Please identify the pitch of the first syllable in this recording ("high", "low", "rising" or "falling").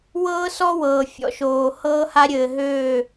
high